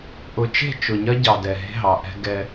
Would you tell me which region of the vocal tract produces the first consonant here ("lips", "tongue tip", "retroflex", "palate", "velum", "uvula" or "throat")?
throat